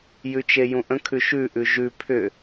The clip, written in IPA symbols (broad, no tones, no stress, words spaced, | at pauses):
jʉt͡ʃejũʔə̃ kʰʉʃʉ ʔʉʒʉ pʰʏ